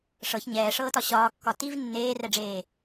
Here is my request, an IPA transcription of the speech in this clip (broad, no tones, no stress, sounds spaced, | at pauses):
ʂ ɤ ç ɲ ɛː ʂ ɤː t ɒ ɕ ɒː kː ɒ t i v nː eː r ɛ ɖ͡ʐ eː